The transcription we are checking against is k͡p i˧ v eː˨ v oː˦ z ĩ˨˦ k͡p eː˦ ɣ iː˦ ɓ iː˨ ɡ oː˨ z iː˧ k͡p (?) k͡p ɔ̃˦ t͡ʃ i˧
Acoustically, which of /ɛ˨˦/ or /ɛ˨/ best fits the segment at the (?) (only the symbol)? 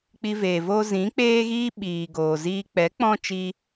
ɛ˨˦